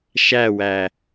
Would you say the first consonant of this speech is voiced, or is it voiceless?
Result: voiceless